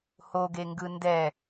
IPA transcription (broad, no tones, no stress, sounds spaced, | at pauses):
h o ɡ e ŋ ɡ ɯ n d ɛ